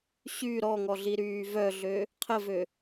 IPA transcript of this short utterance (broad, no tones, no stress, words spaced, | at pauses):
ɕy ɾɔŋɔɮiɾyː vœɮø | qʰəvø